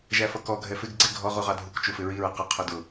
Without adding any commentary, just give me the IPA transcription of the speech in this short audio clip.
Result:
ʒ æ f ʌ k ɔ ɡʱ ɛ f ɪ ɡ ɡ͡ǀ ɪ ɡʱ ɔ ʁ u ʁ ɑ dʱ u k t͡ʃ u f ɪ ɹ i ɹ ə q ə qʰ ʊ d ʊ

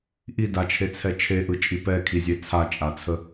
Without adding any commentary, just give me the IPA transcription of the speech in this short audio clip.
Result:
ʔ i d a t͡ʃʰ e t͡sʰ ɛ t͡ʃʰ e ʔ ɯ t͡ʃʼ i p ɛ kʰ i zʲ e t͡sʰ a t͡ʃʼ a t͡sʰ ə

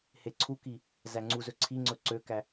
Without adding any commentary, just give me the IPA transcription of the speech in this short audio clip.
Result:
h e ǀʰ u k i | z æ ŋ͡ǀ u z ɵ ǀʰ i ŋ͡ǀ ɵ ǀ ø k æ

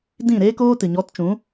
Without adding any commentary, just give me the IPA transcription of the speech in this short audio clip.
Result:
d ĩ˦˨ ɾ eː˦ k oː˦ t ɨ˨ ɲ ɔ˨˦ t t͡ʃ ũ˨˦

